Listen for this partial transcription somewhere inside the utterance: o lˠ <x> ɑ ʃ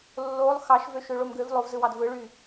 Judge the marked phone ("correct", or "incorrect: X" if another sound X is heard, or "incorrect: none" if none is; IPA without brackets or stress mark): correct